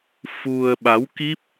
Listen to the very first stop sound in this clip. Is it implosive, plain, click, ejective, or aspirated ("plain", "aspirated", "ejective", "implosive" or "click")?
implosive